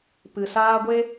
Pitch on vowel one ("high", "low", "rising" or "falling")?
low